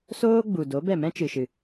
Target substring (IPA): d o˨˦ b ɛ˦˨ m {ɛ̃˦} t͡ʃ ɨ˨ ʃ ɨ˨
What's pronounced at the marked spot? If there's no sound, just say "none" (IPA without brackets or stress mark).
ɛ̃˦